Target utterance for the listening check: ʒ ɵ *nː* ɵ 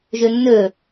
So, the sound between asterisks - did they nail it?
yes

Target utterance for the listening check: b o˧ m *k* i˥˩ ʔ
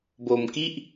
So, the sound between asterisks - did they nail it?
yes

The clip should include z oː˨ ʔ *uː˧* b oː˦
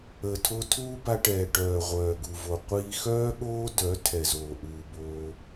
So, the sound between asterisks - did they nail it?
yes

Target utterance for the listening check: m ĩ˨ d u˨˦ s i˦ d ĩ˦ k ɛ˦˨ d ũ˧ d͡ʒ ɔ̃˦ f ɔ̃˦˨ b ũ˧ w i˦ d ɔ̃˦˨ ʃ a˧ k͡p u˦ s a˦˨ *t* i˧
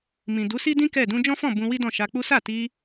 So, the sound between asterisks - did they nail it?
yes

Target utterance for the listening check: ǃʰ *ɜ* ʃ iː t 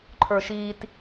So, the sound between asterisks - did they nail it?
no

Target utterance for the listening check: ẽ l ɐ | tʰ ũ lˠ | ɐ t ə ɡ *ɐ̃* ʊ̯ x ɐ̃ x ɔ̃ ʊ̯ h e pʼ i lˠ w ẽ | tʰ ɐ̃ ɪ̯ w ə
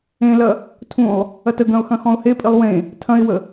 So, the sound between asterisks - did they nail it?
yes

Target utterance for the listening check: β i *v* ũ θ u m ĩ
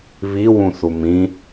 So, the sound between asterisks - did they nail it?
no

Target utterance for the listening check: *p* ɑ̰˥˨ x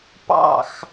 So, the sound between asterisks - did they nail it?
yes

